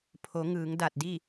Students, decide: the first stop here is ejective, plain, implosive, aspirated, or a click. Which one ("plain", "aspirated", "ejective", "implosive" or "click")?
aspirated